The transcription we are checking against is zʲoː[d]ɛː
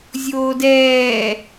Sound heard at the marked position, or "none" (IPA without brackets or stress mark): d